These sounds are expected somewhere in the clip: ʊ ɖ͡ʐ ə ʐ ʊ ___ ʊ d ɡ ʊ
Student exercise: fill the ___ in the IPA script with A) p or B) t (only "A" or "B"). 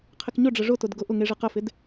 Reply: B